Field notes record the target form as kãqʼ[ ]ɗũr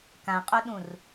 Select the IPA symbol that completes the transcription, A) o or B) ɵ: A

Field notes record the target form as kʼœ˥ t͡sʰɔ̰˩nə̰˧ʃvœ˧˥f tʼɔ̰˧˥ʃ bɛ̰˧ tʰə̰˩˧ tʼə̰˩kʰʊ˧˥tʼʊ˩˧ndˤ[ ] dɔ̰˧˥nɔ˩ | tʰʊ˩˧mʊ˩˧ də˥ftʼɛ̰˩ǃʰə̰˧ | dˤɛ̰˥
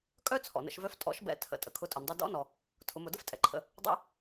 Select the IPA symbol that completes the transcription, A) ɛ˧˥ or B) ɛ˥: B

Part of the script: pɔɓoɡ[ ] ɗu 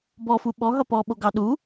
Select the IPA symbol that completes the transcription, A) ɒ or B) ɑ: B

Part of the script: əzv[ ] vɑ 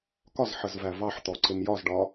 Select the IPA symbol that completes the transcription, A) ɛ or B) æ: B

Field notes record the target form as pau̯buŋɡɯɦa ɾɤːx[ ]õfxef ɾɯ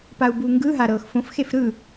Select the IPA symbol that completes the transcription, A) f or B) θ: A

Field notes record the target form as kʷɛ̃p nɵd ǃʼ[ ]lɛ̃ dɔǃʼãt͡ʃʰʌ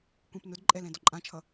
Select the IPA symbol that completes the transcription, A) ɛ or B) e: A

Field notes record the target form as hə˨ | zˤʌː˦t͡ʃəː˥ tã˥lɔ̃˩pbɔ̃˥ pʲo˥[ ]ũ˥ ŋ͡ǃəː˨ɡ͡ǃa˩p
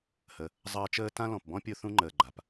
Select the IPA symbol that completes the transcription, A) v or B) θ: B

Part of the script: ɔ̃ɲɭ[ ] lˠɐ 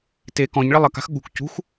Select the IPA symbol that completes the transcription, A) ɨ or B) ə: B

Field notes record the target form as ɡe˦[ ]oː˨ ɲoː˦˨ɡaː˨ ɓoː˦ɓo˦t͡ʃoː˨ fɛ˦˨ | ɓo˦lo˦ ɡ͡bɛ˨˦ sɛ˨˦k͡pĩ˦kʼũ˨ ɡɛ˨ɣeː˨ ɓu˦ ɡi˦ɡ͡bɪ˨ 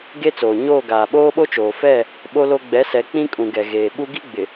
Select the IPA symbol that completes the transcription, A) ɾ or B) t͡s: B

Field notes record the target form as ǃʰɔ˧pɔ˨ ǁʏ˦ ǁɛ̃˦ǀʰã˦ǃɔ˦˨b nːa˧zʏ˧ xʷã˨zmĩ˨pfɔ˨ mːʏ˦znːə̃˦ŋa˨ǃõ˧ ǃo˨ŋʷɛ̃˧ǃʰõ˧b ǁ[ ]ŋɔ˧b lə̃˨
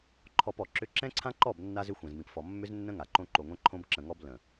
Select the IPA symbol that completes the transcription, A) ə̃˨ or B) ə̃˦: A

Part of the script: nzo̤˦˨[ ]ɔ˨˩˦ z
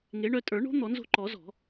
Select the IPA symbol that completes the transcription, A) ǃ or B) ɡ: A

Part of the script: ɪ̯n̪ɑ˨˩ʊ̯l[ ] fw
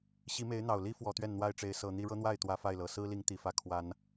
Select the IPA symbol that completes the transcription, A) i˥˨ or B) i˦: B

